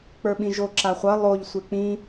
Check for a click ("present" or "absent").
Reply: present